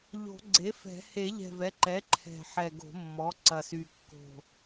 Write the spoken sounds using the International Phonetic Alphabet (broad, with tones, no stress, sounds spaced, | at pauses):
ʎ o̤˨˩˦ ɡ͡ǀ e˩˥ f ɛ̤˨˩˦ h e˨˩˦ ʎ ɛ̤˨˩ v ɛ˩˥ ǃ ɛ˩˥ ǃʰ ɛ̤˨˩ ħ ɛ˨˩ ɡ o̤˨˩˦ mː ɔ˩˥ ǀ ɐ˨˩ s y˨˩ kː o̤˨˩